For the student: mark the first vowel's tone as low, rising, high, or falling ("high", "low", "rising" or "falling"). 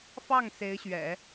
falling